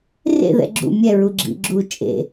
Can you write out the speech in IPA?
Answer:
r ḛ ð ɛ̰ ɡ͡ǁ ṵ mʲ ɛ ɹ u ɡ͡ǁ ḭ ɡ͡ǁ u t͡ʃʼ ḛ

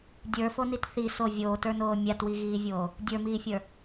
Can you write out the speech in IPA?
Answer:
dʲ ə˞ f o n i t θ i s o vʲ oː t ə˞ n oː mʲ a t w i ɣ iː vʲ oː | dʲ ə˞ m iː fʲ ə˞

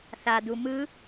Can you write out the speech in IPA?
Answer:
θ a d̪ u m ɯ

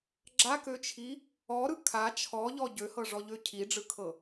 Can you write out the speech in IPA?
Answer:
ɡ͡ǁ a k ø t͡ʃʰ i | ɔ ɾ ɯ kʰ a t͡ʃʰ ɔ ʎ ɔ ɟ ø h ɤ ʐ ɔ ʎ ø cʰ i ɖ͡ʐ ɯ kʰ ɤ

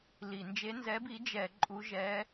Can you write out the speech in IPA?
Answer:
l i˧˩˧ n d͡ʒ e˧˥ n z ɛ˧˥ b i˧˥ d͡ʒ ɛ˧˩˧ ǃʼ u˧˥ ʒ ɛ˧˥

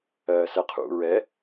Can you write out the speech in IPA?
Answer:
ɜː s ɛ qʰ ṵ ɹ ɛ

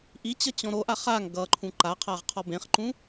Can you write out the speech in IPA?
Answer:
ʔ i t͡ɕ ʌ t͡ɕ ɔ̃ ɾ o ʔ a χ a ŋ ɡ ʌ ǃʰ ũ ǃ a qʰ a ʁ qʰ ɔ b ẽ χ ǃ ũ

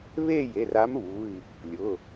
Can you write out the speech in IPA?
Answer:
β e˥˧ j e˩˧˩ r a˧˥ m β u˩˧˩ i̯ | lʲ ʊ˩˧˩

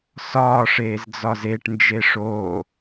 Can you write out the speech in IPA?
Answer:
s ɒː ʂ eː z d͡z ɒ z e ʈ n d͡ʒ e ʂ oː

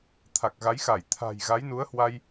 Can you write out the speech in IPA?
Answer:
t̪ʰ a˨˩ k̚ ɣ a˨˦ j x a˧˩ j t̪ʰ a̤˨˩ j ɣ a˨˦ j n u˨˦ ə̯ h w a˧ j

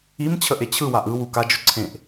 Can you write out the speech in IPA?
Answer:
i m t͡ɕʰ ə ʔ e t͡ɕʰ ɯ w a ʔ ɯ w u k a d͡ʒ ʊ ǀʰ ẽ ʔ

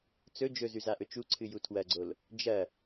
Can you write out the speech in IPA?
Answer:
t͡s ɵ d͡ʒ ɵ z ʉ z a ʔ ɵ t͡ʃ u ǀʰ ɨ j u tʰ w ɐ ɡ͡ǀ o l | d͡ʒ ɐ

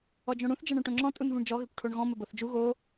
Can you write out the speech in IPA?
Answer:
ɔ d͡ʒ õ ɽ ũ θ d͡ʒ ɤ ɳ õ ʈ õ ŋ͡ǁ ɔ̃ tʼ u n v ũ ɳ d͡ʒ ɔ ɣ ɘ kʷ ʈʰ o ɳ ɣ ɔ̃ m ɘ b ɤ θ d͡ʒ u ɣ o

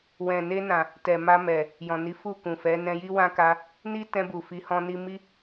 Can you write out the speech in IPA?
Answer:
w ɛ̃˨ n e˧ n ã˨ | t ɛ˨ m a˧ m ɛ˨ | j ɔ̃˨ n i˨˦ f u˦˨ k ũ˨ f ɛ˨˦ n ɛ̃˧ j i˦ w ã˦ k a˧ | n i˦ t ɛ̃˧ b u˨ f i˨˦ h ɔ̃˧ n i˧ m i˦

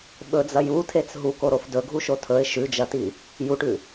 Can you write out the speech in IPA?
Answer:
ɓ ɵ d͡z ɐ j u tʰ e t͡s ɦ u k o ɾ o f d ɵ ɡʱ u ʃ o tʰ ɵ ɪ̯ ʃ ʉ d͡ʒ ɐ t i | j u ʈ ʉ

